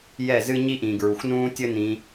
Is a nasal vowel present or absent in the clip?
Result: present